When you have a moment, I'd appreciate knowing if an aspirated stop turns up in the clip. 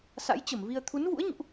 yes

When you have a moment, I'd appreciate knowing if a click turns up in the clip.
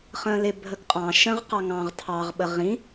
no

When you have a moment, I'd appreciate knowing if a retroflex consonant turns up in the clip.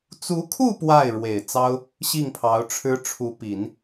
yes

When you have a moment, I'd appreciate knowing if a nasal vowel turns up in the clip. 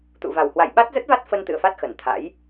no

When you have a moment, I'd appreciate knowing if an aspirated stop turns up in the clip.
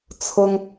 yes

